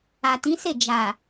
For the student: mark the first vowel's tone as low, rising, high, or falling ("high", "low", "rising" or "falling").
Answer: low